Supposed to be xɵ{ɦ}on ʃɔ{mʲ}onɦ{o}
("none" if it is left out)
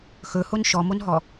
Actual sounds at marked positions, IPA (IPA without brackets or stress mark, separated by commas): h, m, ɔ